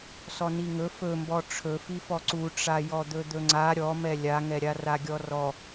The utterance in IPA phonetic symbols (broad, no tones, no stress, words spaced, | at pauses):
sɔniŋɵ fɵmbɔ ʈ͡ʂʰɵfifɔ ǀuʈ͡ʂajɔ d̪ɵd̪ɵŋ͡ǀa ɾʲɔmɛ lʲaŋɛɾʲa raɡʲɔrɔ